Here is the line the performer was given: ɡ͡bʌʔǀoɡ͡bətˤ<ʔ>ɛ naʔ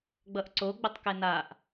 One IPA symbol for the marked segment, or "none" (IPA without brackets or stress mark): k